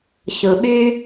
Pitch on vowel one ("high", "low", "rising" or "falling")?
low